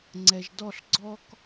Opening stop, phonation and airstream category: click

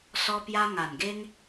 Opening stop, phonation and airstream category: plain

